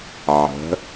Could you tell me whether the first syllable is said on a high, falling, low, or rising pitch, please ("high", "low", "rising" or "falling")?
rising